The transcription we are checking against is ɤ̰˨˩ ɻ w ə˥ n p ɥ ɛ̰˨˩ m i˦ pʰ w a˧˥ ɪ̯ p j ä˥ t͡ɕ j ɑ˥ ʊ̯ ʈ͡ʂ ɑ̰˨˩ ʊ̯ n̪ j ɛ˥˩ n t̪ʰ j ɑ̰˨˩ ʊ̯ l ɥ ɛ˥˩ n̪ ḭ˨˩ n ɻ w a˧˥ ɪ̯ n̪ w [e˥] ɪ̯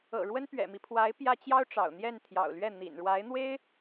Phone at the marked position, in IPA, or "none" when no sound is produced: e˥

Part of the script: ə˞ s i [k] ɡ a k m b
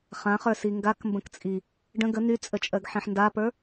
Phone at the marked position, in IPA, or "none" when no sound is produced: ŋ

